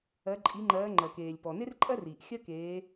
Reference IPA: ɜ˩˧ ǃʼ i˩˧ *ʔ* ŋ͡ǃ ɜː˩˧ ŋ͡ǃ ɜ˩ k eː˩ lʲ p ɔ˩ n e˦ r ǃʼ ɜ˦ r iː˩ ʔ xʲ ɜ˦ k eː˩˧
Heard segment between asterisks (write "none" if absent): none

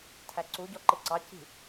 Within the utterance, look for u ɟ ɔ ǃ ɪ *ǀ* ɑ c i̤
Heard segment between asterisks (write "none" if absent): ǀ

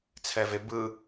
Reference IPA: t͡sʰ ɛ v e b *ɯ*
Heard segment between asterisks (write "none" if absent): ɯ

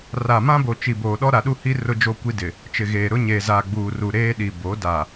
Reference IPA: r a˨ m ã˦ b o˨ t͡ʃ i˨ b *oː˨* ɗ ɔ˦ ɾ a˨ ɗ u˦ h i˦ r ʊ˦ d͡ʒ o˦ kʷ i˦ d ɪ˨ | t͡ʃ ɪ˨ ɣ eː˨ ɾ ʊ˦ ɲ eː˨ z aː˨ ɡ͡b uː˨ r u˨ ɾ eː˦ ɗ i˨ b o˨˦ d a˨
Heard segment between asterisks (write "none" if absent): oː˨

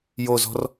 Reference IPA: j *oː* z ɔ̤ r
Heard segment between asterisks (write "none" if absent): o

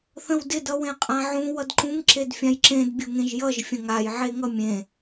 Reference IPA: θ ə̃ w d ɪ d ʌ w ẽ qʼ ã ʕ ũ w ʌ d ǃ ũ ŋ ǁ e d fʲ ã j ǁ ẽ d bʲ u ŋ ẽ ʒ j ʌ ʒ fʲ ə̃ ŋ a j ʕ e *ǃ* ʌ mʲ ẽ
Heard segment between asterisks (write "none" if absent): ŋ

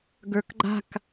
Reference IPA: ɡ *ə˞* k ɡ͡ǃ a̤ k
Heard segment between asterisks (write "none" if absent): ə˞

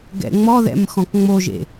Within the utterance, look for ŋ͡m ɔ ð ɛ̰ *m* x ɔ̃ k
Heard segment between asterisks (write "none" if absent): m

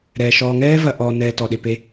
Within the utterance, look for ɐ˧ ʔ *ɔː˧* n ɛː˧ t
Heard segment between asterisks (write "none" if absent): ɔː˧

